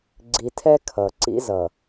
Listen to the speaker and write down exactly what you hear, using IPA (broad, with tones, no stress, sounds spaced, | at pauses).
ɡ͡ǀ i˨ tʰ ɛ˦ kʰ ʌ˨ ǀ ḭ˦ z ʌ˨